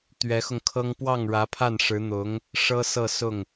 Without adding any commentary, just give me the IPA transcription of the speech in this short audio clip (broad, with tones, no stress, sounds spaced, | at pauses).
t̪ ɥ ɛ˧˥ x ʊ˧ ŋ kʰ ɤ˥ ŋ p w ɑ˥˩ ŋ ɻ ä˧˥ pʰ a˥˩ n ʂ ɻ̩˧˥ n̪ ʊ˧˥ ŋ | ʂ ɤ˥ s ɤ˥˧ s ʊ˥˩ ŋ